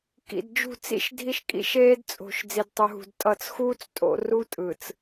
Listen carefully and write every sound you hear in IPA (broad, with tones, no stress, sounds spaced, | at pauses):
k ḭ˨ d d͡ʒ ṳ˦˨ t͡s ḭ˦ ʃ dʱ i˦ ʃ kʼ ḭ˦ ʃ eː˦ d t͡sʼ o̤˨ ʃ d͡z i˨ d tˤ u˨ ɦ ṳ˨ d tʼ ʌ˨ t͡s x uː˦ t͡s tʼ o̰˦ r u˦ tʼ ɯ˨ t͡s